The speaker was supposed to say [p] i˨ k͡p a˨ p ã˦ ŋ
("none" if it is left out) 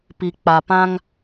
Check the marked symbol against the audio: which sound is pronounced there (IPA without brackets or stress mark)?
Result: p